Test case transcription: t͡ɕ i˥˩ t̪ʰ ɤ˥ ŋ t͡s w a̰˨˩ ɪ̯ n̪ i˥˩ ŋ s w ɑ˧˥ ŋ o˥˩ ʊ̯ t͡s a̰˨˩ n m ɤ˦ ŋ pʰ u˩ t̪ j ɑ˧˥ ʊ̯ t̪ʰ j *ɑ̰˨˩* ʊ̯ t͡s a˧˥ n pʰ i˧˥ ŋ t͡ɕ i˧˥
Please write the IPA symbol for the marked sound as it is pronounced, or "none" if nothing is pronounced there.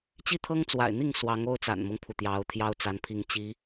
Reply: ɑ˥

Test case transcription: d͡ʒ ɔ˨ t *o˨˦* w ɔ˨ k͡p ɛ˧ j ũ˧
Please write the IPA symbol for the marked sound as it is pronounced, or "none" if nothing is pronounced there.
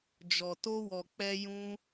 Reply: o˧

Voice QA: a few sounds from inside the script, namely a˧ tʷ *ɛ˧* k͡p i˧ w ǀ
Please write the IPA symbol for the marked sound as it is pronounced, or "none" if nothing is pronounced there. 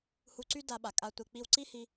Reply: e˧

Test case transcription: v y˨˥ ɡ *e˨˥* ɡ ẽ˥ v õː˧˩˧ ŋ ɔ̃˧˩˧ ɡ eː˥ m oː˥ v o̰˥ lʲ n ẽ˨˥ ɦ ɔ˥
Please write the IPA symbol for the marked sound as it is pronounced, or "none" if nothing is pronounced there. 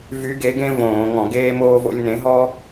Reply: e˨˥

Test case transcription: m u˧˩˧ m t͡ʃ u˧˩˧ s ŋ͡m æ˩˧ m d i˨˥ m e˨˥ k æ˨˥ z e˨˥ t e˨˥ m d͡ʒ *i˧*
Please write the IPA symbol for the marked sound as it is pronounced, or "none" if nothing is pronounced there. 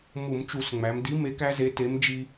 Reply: i˧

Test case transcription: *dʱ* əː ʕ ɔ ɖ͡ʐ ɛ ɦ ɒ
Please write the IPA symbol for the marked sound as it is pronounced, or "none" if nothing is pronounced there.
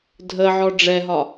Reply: dʱ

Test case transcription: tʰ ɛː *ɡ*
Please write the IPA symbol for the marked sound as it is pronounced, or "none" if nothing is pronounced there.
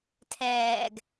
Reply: ɡ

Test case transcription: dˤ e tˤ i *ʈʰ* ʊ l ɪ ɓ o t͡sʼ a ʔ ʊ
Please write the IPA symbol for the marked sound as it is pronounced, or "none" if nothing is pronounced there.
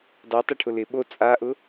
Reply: ʈʰ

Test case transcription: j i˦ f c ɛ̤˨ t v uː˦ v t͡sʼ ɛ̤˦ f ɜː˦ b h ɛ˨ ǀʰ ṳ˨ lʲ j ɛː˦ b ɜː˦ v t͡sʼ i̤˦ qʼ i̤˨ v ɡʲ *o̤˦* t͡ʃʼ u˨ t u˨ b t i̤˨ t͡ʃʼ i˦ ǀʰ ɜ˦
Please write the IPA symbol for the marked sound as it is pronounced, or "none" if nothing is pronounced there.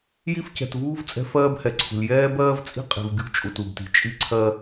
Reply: ṳ˦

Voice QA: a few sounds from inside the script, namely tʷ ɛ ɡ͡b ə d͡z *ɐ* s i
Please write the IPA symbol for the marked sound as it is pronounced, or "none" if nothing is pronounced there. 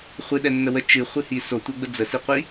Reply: ə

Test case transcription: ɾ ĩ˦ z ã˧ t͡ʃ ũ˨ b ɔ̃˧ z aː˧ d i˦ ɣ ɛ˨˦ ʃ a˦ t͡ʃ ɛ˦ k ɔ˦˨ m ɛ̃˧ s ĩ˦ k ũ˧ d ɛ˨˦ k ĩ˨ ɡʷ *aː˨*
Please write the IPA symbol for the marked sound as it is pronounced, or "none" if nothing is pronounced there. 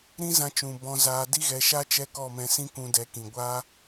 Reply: aː˦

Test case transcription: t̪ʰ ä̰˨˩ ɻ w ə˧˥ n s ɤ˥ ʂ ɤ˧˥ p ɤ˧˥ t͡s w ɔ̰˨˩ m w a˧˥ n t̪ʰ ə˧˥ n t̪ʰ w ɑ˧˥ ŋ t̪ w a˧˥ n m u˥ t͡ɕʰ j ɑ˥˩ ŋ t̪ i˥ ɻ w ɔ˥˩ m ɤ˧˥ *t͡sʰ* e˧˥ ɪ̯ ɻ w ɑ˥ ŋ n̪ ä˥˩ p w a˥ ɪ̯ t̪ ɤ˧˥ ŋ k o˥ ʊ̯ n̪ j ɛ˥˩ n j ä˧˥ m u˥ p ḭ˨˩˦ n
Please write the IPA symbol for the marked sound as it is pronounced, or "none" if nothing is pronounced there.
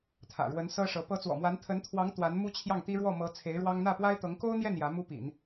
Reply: t͡sʰ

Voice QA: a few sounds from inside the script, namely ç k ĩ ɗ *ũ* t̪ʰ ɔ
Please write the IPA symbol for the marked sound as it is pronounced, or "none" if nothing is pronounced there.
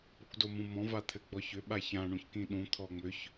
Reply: ũ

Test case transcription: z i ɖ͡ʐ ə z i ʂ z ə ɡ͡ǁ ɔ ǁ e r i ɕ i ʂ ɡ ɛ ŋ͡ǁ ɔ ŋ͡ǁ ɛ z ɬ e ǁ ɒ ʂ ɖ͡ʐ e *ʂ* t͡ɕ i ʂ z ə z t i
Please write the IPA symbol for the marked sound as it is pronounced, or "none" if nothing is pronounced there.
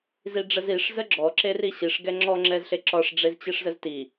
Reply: z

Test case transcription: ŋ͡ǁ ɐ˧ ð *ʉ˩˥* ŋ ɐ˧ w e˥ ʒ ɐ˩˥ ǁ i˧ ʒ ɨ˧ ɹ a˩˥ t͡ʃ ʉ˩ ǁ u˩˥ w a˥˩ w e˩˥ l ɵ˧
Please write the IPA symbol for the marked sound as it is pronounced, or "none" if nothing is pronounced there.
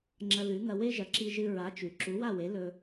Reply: ʉ˩˥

